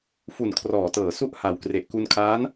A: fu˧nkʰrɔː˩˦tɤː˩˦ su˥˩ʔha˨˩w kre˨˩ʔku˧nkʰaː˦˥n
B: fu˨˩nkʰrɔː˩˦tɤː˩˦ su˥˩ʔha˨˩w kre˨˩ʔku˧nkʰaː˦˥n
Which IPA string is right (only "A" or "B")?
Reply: B